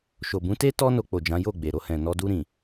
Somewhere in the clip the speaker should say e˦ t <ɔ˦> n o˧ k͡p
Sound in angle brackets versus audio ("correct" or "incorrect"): correct